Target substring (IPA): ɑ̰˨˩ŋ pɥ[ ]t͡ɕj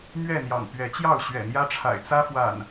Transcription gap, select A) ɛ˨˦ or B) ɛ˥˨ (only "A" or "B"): A